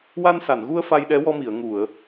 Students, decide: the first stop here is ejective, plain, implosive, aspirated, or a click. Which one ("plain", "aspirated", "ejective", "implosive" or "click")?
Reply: implosive